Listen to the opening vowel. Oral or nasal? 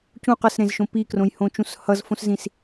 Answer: nasal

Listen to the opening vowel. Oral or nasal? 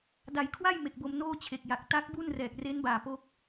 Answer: oral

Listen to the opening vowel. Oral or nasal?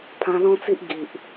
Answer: nasal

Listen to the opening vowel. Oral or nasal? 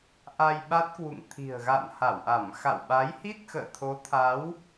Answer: oral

